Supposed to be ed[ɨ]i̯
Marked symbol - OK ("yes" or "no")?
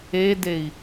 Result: no